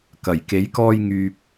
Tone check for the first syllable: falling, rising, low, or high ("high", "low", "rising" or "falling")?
low